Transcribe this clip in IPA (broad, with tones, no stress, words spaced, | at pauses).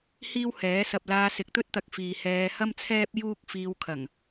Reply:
hiː˥whɛː˨˥sɐ˧p̚ laː˧sɪ˨k̚t̪ɵ˥t̚t̪ɐ˨k̚ fiː˨hɛː˧hɐ˥m t͡sʰɛː˥p̚ juː˥k̚fiː˧wkʰɐ˨˩ŋ